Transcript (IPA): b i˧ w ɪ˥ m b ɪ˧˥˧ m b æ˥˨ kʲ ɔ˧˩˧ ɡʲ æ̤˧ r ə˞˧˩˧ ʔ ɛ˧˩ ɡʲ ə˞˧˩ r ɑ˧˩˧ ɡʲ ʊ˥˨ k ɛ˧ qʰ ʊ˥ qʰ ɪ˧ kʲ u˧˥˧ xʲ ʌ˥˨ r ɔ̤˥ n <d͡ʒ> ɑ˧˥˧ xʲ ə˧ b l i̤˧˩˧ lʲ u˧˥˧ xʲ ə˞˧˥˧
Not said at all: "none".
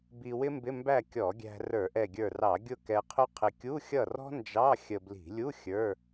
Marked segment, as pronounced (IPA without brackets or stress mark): d͡ʒ